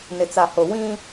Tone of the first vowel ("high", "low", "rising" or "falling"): low